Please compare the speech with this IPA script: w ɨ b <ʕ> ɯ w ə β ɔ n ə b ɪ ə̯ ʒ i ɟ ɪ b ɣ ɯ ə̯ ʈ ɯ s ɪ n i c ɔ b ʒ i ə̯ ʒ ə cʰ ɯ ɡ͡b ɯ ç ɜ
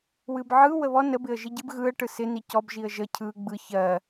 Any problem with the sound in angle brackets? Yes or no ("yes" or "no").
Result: no